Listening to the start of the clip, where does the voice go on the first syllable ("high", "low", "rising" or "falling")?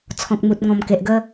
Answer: low